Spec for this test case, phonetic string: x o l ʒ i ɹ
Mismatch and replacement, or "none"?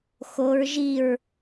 l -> ɹ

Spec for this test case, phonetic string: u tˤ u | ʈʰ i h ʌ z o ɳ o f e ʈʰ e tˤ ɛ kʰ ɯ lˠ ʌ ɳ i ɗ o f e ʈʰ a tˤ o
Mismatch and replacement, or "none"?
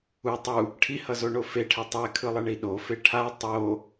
none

